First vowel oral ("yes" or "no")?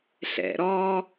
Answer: yes